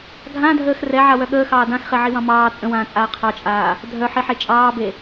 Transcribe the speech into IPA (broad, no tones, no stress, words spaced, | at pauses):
ɡʱãdʱəːx rɛʕawœ ɠəːxɑː dãxχeʕiwɑ̃ mɑː t͡sʼə̃wãːt͡sʼaː qʰɑt͡ʃʼaː | dʱœħiħe t͡ʃʼɑːbe